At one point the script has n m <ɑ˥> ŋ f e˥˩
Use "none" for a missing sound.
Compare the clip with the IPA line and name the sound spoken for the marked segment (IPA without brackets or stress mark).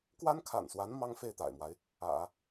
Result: ɑ˥